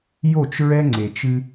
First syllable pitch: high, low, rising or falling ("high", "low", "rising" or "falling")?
falling